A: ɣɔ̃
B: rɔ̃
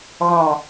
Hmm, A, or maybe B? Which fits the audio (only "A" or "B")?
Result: A